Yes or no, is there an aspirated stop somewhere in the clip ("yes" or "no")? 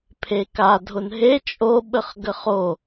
yes